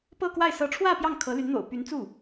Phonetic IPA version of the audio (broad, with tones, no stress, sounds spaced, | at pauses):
p ɤ˥˧ k w a˥˩ ɪ̯ s ɤ˧˥ ʈ͡ʂʰ w ä˥˧ p j ɑ˥˩ ŋ kʰ ɤ˧˥ l y˧˥ n n̪ o̰˨˩ ʊ̯ p y˧˥ n t͡s u˥˩